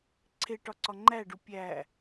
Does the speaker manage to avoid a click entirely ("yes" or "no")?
no